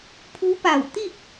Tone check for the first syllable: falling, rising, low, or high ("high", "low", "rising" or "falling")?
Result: rising